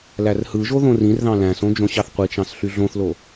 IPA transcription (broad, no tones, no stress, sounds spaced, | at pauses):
l æ r h ɯ ʒ o ð õ r ĩ r ð ɑ̃ l æ̃ s õ d͡ʒ õ ɕ ɑ θ qʷ i t͡ʃ ɑ̃ s ɬ y ɮ õ θ l o